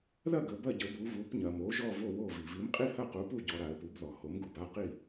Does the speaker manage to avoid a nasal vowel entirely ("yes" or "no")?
yes